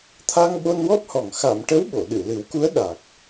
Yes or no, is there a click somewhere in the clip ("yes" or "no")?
no